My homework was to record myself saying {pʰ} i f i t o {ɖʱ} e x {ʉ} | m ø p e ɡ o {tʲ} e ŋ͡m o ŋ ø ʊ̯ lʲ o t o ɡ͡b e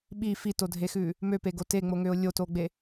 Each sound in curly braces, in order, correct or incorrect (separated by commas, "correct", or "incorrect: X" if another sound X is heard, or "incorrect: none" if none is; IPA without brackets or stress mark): incorrect: ɓ, incorrect: dʱ, correct, incorrect: t